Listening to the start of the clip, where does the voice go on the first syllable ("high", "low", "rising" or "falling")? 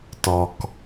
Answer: low